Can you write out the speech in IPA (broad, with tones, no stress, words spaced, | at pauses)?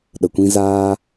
ɗə˨kʷĩ˦zaː˦